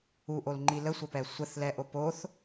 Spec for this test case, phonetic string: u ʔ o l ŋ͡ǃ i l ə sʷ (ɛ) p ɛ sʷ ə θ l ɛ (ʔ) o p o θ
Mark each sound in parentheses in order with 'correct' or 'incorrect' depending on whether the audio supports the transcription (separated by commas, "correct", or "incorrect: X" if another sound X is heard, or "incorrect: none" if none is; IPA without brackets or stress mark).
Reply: incorrect: ə, correct